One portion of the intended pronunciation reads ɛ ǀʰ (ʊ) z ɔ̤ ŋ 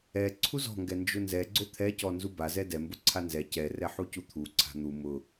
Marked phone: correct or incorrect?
incorrect: u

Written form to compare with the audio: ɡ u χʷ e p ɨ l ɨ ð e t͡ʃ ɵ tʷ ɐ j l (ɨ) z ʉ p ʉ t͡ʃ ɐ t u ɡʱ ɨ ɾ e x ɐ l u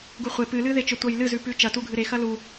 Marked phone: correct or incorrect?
correct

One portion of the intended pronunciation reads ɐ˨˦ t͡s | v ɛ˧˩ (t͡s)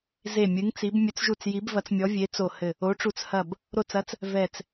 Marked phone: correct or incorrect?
correct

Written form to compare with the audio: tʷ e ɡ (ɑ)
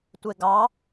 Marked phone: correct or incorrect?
correct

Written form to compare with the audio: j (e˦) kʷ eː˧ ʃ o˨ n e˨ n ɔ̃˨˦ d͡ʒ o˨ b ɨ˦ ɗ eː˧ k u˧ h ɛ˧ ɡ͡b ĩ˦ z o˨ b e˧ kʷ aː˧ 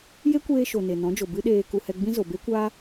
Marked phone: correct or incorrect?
correct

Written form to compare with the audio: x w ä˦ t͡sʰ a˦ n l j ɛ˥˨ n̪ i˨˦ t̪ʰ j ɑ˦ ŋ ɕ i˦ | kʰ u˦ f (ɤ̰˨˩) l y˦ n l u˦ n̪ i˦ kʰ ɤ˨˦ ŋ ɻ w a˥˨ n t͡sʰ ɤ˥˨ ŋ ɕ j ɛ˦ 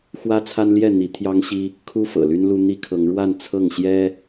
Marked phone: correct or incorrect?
correct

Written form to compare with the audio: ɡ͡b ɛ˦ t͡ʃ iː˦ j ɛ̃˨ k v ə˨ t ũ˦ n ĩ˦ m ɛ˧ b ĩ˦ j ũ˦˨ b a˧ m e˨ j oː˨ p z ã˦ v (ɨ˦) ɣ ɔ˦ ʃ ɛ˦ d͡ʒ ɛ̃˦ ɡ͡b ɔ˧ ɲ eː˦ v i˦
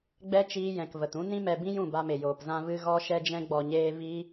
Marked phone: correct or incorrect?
correct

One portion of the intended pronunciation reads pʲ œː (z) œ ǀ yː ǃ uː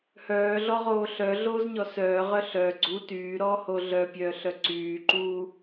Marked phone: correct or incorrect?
incorrect: ɬ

